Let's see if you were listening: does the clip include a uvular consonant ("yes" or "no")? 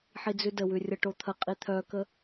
yes